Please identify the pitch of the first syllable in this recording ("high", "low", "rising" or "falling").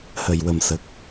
low